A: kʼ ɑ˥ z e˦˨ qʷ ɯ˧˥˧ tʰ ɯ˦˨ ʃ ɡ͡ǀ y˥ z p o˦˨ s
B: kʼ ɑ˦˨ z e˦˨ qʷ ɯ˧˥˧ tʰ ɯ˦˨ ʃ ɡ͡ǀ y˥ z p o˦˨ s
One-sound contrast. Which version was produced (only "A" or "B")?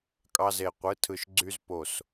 A